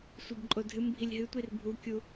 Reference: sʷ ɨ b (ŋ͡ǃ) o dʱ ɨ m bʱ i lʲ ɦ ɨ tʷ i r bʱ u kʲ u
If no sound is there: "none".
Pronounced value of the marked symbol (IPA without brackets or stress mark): ǃʼ